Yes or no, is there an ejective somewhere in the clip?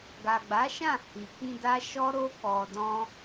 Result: no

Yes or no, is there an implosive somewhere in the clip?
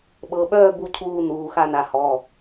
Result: yes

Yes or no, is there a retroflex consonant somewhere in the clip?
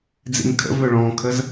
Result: yes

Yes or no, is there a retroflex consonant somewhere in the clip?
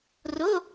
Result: no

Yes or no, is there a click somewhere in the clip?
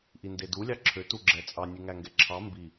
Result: yes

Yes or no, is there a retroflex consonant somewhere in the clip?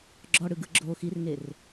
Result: yes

